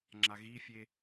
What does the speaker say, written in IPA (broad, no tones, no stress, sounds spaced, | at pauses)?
ŋ͡ǁ a ɣ i fʲ e